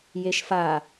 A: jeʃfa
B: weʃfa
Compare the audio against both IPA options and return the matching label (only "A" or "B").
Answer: A